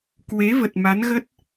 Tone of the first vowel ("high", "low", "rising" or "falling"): rising